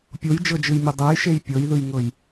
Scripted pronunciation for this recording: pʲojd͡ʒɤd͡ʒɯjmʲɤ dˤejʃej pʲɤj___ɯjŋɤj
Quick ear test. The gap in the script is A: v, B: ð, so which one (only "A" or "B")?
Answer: B